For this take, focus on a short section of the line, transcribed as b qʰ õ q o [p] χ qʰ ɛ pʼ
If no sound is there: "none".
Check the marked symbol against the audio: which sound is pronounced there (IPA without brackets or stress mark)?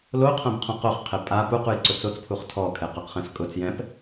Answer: none